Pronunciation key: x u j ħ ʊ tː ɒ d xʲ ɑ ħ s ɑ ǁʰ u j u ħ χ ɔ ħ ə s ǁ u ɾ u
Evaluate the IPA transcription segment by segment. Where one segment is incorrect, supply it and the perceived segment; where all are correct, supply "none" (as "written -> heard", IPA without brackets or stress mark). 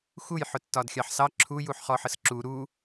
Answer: none